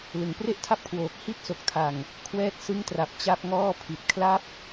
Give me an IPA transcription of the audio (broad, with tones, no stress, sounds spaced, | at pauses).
l ɯ˩˦ ŋ p r e˥˩ ʔ tʰ a˥˩ p̚ kʰ w oː˨˩ k̚ h i˥˩ t̚ s o˨˩ k̚ tʰ a˨˩ ŋ | kʰ w ɛː˥˩ t̚ s ɯ˦˥ ŋ t r a˨˩ p̚ t͡ɕ a˥˩ p̚ ŋ ɔː˥˩ pʰ i˨˩ t̚ kʰ l a˦˥ p̚